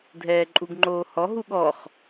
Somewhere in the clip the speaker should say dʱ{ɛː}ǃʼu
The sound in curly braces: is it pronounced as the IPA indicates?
yes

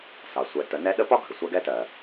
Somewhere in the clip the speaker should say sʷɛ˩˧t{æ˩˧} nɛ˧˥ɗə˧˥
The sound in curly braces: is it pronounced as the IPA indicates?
no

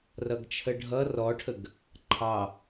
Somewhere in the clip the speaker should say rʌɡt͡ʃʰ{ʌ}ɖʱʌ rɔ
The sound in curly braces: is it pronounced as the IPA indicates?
no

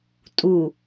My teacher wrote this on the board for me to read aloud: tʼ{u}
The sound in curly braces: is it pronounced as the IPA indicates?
yes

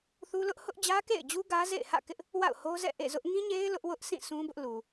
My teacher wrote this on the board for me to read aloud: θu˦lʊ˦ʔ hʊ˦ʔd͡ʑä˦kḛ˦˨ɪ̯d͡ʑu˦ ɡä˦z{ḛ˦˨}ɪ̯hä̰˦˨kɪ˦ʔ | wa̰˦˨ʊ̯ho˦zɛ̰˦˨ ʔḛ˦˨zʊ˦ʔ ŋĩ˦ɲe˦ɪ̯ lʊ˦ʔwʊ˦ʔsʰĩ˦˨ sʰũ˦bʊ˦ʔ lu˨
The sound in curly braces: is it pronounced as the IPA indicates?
yes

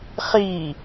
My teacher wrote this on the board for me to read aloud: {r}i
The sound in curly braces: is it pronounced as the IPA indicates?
no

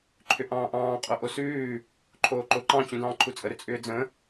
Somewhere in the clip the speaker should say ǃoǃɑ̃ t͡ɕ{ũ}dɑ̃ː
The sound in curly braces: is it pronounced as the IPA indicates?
yes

